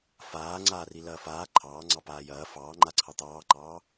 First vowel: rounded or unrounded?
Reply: unrounded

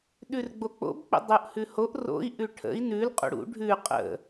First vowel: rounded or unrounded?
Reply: rounded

